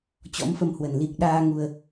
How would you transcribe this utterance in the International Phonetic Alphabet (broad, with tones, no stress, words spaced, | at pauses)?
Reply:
t͡ɕɔ̰˧˥mfə˧mhwə˨˩n li˨˩k̚ɗaː˧ ŋu˧ə̯